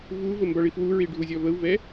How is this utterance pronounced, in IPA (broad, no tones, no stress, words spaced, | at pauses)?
vuvə mbɒɭifwuɹi ɖʱuzʲɒvəu̯vɛ